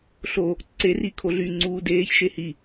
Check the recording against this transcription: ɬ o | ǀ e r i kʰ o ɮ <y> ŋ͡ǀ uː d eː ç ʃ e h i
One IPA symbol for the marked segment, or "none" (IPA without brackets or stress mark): y